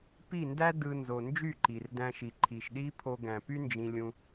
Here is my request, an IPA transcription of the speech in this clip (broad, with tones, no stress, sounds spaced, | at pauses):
p i˦˨ n d æ˦ d ɯ˧ n z o˨ n d͡ʒ y˦˨ ǃ i˨ r d æ̃˧ ʃ i˨ ǃʰ i˨ ʃ ɗ i˦ pʰ o˧ ɡ æ̃˨ p y˦ n d͡ʒ ĩ˧ lʲ ũ˧